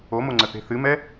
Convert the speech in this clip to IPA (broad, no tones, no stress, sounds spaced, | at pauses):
o m o ŋ͡ǀ ə θ e̤ θ ɨ m ɛ